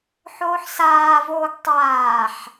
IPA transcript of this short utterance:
ħ oː ħ s aː v oː ɡ tˤ aː ħ

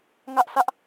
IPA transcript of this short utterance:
ŋ ä˦ ʔ sʰ ä˦ ʔ

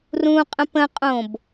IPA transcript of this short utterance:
r ũ qʼ ə̃ p ə̃ qʼ õ b

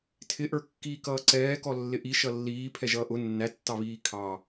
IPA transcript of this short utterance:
tʰ ɪ ʔ ə˞ kː iː k ʌː ǀ ɛː k ɔ lː ɪ ʔ i ʃ ʌ lː iː pʰ ɛ ʒ ʌː ʔ ʊ nː æ tː ɑ β iː kʰ ɑ

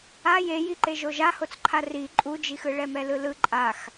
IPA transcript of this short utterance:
a j e j i ǃ e ʒ o ʒ a h o t͡s ǃʰ a r i ǃʼ u d͡ʒ i x ɯ ɭ ɛ m ɛ l ɯ l ɯ ǃʼ a x

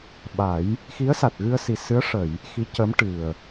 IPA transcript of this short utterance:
ɓ a˨˩˦ j | x i˧˥ ə̯ s a˨˩ t̚ ɣ ɨ˧ ə̯ s i˨˩ s ɨ˧˥ ə̯ ʂ ə˨˩˨ j | x i˧˥ c ə˧˥ m ʈ ɨ˨˩ ə̯

